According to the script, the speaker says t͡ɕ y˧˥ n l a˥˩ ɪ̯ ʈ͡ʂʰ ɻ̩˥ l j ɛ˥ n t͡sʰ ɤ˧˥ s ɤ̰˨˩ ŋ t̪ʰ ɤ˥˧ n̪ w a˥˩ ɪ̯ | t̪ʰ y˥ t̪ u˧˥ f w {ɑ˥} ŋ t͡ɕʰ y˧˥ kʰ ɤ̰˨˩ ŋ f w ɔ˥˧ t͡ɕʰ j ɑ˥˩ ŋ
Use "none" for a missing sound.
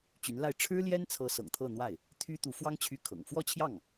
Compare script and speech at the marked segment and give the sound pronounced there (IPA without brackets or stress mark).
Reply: ɑ˥